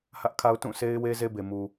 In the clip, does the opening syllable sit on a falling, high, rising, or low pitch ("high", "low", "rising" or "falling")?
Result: high